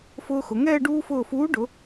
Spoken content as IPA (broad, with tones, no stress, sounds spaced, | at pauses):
f ʊː˧ x ʊ˩˧ ŋ ɛː˥˧ ɖ uː˧ f ʊː˧˩ f uː˨˥ ɖ ʊ˩˧